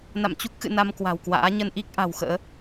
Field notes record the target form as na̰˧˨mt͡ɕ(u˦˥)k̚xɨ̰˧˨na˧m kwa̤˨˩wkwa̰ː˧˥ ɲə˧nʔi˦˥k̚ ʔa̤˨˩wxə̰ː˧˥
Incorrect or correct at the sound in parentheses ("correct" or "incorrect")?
correct